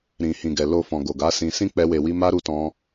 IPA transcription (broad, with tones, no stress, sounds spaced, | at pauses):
ɾ ĩ˨ h ĩ˨ ɡ ɛ˨ l o˨ f ɔ̃˨ ɡ o˨ ɡ a˨˦ s ĩ˧ s ĩ˦ k͡p ɛ˧ w e˨ w i˧ m a˦ ɾ u˧ t ɔ̃˧